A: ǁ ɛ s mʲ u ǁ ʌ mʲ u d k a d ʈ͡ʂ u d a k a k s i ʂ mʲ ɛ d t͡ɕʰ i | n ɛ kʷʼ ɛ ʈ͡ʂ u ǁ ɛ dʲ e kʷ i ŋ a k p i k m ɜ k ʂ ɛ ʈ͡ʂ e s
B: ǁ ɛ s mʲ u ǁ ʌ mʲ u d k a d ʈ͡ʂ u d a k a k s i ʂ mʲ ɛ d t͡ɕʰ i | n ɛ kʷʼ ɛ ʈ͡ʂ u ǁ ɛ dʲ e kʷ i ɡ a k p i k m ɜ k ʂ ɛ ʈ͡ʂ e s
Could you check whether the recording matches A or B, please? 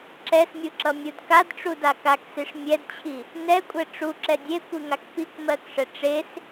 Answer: A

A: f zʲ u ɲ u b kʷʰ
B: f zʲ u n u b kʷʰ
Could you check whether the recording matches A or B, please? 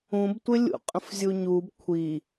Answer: A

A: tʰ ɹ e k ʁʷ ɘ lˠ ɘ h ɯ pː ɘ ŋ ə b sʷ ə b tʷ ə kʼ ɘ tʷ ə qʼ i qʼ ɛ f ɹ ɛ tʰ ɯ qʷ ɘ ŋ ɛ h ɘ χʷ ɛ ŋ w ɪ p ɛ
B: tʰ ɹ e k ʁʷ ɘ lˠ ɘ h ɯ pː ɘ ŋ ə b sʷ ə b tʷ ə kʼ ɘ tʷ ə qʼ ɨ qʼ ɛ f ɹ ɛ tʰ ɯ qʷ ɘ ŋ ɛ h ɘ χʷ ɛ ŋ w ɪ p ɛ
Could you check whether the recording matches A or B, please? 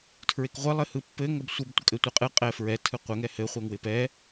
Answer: B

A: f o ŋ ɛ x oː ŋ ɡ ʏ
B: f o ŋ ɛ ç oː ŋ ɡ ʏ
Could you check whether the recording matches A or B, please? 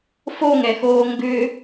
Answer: A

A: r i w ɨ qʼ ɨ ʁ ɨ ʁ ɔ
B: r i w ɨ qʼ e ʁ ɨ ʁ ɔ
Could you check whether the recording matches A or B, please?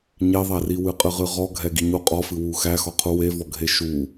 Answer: A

